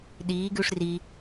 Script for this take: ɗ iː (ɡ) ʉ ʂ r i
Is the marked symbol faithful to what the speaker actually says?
yes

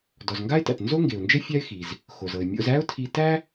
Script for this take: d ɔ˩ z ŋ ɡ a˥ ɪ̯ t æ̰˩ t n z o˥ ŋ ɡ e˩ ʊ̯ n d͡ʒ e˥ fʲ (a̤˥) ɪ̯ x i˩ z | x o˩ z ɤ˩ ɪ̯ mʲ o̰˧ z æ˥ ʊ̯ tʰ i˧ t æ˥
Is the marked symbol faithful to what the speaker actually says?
no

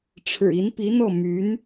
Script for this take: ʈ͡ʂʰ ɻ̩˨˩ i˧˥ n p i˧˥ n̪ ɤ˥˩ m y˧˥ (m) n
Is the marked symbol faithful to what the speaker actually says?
no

